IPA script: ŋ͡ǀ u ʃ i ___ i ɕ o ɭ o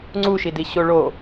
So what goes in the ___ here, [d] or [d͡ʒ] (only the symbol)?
d